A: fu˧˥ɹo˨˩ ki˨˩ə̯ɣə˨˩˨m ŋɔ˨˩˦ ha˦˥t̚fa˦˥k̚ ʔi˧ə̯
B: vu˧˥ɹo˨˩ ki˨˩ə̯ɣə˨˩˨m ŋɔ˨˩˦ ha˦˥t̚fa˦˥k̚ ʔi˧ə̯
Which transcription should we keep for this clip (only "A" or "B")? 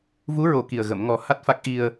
B